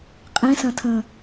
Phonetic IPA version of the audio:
qʼ ẽ s ɐ̃ tʰ ə̃ː

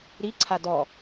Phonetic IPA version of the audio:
ɾ i ǀʰ a d ɔ

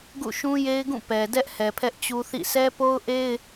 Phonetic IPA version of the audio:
ɡ ṵ˦˨ ʃ ũ˦ j e˦ ɪ̯ ɡ ũ˦˨ p ɛ˨ d ɛ˦ ʔ h ɛ˨ pʰ ɛ˦ ʔ t͡ɕ u˦ θ ḭ˦˨ s ɛ˦ p o˦ ʊ̯ ʔ e˦ ɪ̯

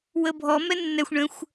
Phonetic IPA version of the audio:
w ə bʱ ɔ m ɛ nː ɛ xʷ ɳ ə̃ xʷ

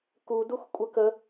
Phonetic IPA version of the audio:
k u d u x kʷʼ ə k ə

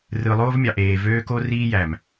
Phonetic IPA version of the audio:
r ɯ˨ lˠ oː˦ v mʲ ɑ˨ ʔ eː˨ v øː˦ k o˦ r iː˦ j æ˨ m

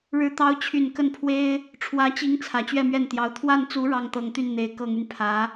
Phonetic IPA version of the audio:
ɻ ɻ̩˧˥ t̪ ɑ˧˥ ʊ̯ t͡ɕʰ y˨˩ n k ə˥˩ n pʰ w e˥ ɪ̯ | ʈ͡ʂʰ w ä˧˥ t͡ɕ i˧˥ ŋ t͡sʰ ä˨˩ t͡ɕ ɥ ɛ˥˧ m ɥ ɛ˥˩ n t̪ j ɑ˧˥ ʊ̯ t̪ʰ w a˥˩ n t͡s u˧˥ ɻ ɑ˥˩ ŋ t̪ ɤ˧˥ ŋ t̪ y˥˩ n n̪ e˧˥ ɪ̯ k ɤ˨˩ ŋ y˦ n pʰ ä˧˥

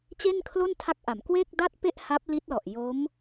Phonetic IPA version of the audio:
t͡ɕ e˥˩ n kʰ l o˥˩ n tʰ a˦˥ k̚ ʔ a˩˦ m k w eː˥˩ k̚ d a˥˩ t̚ p e˥˩ ʔ h a˦˥ p̚ l i˦˥ t̚ l ɔ˨˩ ʔ j o˦˥ m

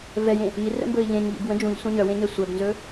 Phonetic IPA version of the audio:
v ɛ j ẽ | i r ə̰ m b ɵ i̯ ʎ ẽ ɲ ʎ ḭ b w ə̃ d͡ʒ ũ ʎ sʷ ɛ̃ ɲ œ w ẽ ɲ ɛ sʷ œ b n z ɵ

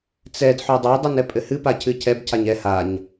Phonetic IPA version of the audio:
t͡s ɛ d ħ o dˤ a dˤ ɨ n ɛ pʼ ɘ h ɨ p a cʰ ɨ cʰ ɛ b cʰ a ɲ ɛ h a ɲ

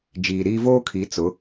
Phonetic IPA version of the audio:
d͡ʒ iː˨ ɾ iː˦ v oː˦ kʰ i˨˦ t͡s ʊ˨˦

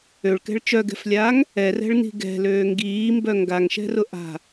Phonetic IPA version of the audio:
ø ɭ k ɛ̤ ɭ t͡ʃ œ ɡ ɛ̤ f lʲ aː ŋ | ɛ r ɛ̤ ɭ n i̤ ɡ ɛ̤ l øː ŋ ɡ iː m b œ ŋ ɡ a ŋ ʃ ɛ̤ r ʊ ʔ a̤

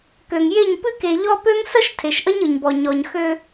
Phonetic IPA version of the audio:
k ø˨ ŋ j e˦˨ ɲ p ɨ˦ k e˨ ʎ ɔ˦ p ø˦ ŋ s ə˦ ʃ tʰ e˨ ʃ ʔ ə˦ ɲ ɯ˨ ɲ b ɔ˨ ɲ ɔ˨ ɲ x ø˦

